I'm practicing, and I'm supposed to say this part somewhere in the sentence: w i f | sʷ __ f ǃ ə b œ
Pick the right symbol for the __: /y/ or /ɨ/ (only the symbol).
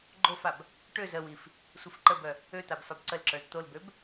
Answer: ɨ